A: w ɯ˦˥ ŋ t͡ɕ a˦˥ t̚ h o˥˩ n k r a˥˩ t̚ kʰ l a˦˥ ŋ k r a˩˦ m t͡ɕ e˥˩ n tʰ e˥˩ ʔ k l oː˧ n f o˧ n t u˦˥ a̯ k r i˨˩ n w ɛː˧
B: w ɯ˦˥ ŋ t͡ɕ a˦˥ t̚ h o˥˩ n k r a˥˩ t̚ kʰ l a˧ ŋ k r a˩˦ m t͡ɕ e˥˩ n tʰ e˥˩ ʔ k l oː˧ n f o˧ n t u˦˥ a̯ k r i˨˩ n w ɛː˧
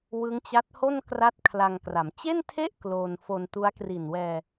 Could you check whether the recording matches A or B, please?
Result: B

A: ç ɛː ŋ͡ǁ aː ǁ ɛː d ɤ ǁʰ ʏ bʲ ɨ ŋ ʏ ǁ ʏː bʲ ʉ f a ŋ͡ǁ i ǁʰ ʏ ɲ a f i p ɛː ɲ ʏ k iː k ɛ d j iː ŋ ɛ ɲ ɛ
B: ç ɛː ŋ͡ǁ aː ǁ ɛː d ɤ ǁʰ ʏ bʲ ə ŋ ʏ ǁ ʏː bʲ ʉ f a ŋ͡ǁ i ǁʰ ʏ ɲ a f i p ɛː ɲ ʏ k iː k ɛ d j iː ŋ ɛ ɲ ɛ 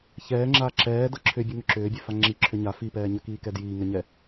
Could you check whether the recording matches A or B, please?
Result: A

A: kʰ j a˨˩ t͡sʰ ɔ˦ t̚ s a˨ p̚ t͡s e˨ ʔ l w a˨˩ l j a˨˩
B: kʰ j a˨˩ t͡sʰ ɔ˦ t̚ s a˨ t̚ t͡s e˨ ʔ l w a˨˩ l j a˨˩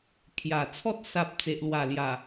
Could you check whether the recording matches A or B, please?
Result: A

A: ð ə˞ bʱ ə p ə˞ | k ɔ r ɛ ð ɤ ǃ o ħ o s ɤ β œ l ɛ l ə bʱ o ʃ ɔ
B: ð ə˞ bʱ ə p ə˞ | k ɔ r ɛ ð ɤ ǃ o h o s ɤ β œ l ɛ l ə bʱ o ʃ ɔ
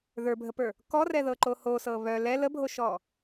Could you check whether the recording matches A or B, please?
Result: B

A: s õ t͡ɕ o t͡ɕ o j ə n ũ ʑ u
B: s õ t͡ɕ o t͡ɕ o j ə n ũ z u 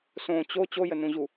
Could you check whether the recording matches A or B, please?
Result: A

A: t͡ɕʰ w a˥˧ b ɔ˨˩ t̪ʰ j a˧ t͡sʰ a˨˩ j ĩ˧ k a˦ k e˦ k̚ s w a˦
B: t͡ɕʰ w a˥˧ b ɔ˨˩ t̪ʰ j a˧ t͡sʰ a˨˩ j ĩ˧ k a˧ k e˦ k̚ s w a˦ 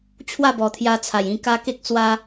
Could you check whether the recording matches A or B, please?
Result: A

